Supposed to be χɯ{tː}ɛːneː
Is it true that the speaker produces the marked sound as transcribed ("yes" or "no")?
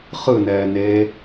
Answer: no